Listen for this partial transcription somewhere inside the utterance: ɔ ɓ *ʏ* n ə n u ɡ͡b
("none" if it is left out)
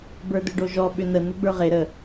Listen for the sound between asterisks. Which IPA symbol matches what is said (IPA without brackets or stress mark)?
ʏ